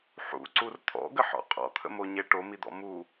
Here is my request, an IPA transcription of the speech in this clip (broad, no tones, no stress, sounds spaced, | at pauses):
ħ ṵ ǀ u r t̪ʰ ɔ̰ ɡ ə ħ ɔ̰ qʼ ɔ̰ t̪ʰ ə̰ m o ɲ e ʈ o m i d̪ ɔ̰ m u